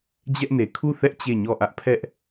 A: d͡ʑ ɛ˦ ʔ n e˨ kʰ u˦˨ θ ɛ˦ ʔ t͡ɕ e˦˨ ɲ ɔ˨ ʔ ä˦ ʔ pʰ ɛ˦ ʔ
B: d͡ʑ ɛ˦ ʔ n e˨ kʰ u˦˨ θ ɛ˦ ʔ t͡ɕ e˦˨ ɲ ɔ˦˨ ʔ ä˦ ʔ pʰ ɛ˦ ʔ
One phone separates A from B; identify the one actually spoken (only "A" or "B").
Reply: B